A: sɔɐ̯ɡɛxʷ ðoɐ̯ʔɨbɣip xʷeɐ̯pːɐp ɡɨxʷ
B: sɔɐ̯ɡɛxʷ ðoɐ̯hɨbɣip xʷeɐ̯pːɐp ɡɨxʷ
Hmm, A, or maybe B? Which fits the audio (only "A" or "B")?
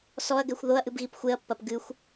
A